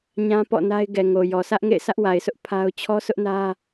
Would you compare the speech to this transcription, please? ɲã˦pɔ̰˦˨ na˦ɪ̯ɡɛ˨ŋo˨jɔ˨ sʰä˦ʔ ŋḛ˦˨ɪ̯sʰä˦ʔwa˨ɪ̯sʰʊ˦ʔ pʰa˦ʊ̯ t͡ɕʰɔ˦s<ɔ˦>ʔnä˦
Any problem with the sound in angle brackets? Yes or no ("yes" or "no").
yes